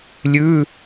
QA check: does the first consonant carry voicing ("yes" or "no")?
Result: yes